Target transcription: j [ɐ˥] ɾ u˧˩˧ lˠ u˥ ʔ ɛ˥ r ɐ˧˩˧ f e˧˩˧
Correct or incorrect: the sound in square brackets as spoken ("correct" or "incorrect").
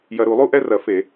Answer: incorrect